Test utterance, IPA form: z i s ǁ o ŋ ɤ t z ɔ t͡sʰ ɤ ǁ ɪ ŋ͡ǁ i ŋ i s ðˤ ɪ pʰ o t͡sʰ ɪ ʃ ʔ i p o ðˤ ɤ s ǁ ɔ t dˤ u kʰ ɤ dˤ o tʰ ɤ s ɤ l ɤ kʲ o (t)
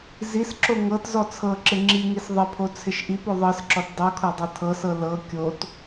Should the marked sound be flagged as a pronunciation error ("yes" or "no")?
no